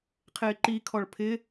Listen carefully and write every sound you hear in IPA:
qʰ ɪː ǃ i kʰ ɔ ɭ pʰ ɪ

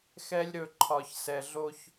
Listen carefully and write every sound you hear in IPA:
x ɛ˦ lʲ ɾ ɵ˦˨ ǃʰ ɒ˨ ç s ɛ˨ ɮ o˦ ç

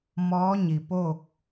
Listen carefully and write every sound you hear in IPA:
m ɔː˧˥ ɲ i˩ p o˥˨ k̚

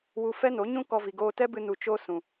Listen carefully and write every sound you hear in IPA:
w u˧ f ɛ˦ n o˨˦ ɲ ũ˦ k ɔ˧ v i˨ ɡ oː˧ t ɛ˦ b ɨ˧ n u˨ t͡ʃ o˧ s ũ˨

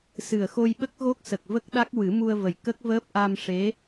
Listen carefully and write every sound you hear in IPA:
s ɨ˨˩ ə̯ x o˧ j ɓ ə˦˥ k̚ ɣ o˦˥ k̚ s ə˨˩ k̚ v ə˦˥ k̚ ɗ a˦˥ k̚ w ɨ˨˩˦ m u˧ ə̯ v ə˨˩ j k ə˦˥ k̚ v əː˦˥ p̚ ʔ a˧ m ʂ e˧˥

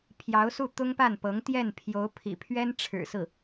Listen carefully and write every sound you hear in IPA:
pʰ j ɑ˧˥ ʊ̯ s u˥˩ t̪ ʊ˥ ŋ p a˥˩ n p ɤ˧˥ ŋ t̪ j ɛ˥˩ n pʰ j o˧˥ ʊ̯ pʰ ḭ˨˩ pʰ ɥ ɛ˥ n ʈ͡ʂʰ ɻ̩˨˩ s ɹ̩˥˩

